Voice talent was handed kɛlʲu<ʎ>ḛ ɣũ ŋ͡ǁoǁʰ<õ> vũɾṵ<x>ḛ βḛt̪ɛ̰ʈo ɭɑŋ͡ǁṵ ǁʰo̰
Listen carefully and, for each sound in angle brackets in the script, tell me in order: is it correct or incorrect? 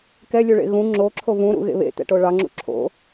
incorrect: ɭ, incorrect: o, incorrect: ɣ

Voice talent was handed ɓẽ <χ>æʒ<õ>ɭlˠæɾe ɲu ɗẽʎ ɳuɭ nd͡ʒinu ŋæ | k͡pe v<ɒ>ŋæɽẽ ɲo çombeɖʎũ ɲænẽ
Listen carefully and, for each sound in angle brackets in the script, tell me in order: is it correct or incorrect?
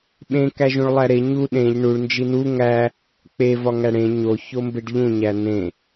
incorrect: k, incorrect: ũ, correct

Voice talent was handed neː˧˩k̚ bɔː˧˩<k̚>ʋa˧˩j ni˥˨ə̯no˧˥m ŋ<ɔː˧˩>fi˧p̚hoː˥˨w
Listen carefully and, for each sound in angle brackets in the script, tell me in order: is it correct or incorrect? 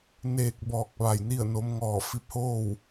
correct, correct

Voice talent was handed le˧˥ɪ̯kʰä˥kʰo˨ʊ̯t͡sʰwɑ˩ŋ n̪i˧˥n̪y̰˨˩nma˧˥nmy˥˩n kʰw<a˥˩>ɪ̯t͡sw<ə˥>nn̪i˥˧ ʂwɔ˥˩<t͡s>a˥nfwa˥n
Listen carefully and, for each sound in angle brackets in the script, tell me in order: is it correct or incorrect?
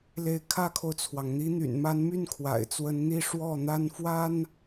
incorrect: a̰˨˩, incorrect: ə˧˥, incorrect: n̪

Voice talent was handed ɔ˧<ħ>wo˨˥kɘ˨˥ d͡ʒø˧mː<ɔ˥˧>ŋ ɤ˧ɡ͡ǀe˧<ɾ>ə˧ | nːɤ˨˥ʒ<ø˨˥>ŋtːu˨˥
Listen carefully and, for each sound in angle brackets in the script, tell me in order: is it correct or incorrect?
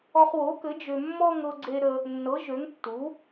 incorrect: χ, correct, correct, correct

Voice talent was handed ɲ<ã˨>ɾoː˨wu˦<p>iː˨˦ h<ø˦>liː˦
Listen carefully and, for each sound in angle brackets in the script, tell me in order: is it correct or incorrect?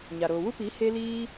incorrect: a˨, correct, incorrect: e˦

